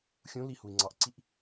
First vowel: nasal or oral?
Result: nasal